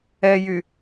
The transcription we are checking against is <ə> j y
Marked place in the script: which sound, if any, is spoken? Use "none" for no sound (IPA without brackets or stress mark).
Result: ɛ